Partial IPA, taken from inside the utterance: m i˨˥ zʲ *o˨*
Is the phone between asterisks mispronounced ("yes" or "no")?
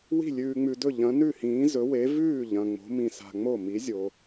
no